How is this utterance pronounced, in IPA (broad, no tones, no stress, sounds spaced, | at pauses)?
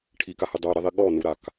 ʈʰ i k a h ɨ dˤ o ɾ i ðˤ i ɠ ɔ n u ɾ a k